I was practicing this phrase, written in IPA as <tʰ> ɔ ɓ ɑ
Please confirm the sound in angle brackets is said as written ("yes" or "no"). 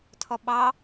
yes